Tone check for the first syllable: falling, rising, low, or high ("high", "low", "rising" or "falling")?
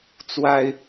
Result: high